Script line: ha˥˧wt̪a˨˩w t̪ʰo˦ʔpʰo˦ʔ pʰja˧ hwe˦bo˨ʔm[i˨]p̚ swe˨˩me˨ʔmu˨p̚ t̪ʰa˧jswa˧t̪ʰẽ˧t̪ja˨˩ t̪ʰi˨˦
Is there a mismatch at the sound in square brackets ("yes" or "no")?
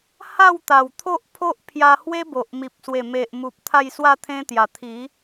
no